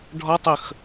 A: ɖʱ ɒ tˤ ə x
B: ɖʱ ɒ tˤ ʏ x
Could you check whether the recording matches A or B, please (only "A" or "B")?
A